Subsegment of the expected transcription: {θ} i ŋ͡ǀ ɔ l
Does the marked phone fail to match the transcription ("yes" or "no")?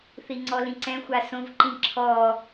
no